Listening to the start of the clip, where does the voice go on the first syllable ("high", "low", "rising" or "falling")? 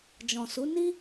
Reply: low